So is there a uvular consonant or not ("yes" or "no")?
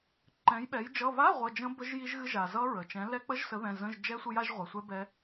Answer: yes